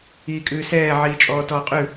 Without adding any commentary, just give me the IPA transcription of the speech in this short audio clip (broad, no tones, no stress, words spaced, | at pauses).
iːkʼʉːsɛː ʕiːt͡ʃʼɔːtɔːqʼʉ